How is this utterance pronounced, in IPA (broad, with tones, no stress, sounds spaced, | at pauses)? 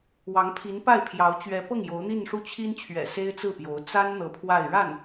w ɑ˧˥ ŋ pʰ i˧˥ n p a˥˩ ɪ̯ pʰ j ɑ˧˥ ʊ̯ t͡ɕ ɥ ɛ˧˥ p ɤ˥˩ ŋ j o˧˥ ʊ̯ n̪ i˥˧ n ʂ u˥˩ t͡ɕʰ i˥ n t͡ɕʰ ɥ ɛ̰˨˩ s e˥ ɪ̯ t͡s ɹ̩˥˩ p j o˧˥ ʊ̯ t͡s a˥ n n̪ ɤ˧˥ pʰ w a˥˧ ɪ̯ ɻ a˥˩ n